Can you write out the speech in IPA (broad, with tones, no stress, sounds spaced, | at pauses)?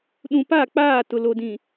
ɗ ũ˨ p a˦˨ k͡p aː˦˨ t ʊ˨ l o˨ d ĩ˨